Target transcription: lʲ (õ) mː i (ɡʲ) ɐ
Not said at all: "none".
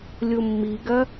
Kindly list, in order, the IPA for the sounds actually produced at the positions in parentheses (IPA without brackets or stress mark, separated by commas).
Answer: o, ɡ